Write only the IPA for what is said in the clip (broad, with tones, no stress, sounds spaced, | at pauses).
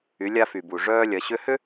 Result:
y˩˧ lʲ a˧ f y˩ b u˩ ʐ œː˧ lʲ ɐ˩˧ ɕ ʏ˧˥ h ʏ˥